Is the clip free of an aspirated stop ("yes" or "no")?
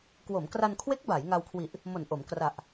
no